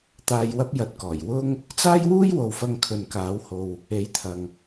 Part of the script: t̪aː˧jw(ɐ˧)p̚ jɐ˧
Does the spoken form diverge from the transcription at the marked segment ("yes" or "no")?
yes